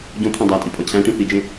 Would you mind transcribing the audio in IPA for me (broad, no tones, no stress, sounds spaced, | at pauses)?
ɟ õ t̪ʰ æ̃ dˤ æ tʼ i pʼ ɒ cʰ æ̃ ʈ ĩ θ i d͡ʒ ẽ